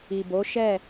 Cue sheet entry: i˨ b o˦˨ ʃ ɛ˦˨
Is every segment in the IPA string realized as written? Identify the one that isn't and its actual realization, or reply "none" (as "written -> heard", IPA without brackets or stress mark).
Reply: o˦˨ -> o˨˦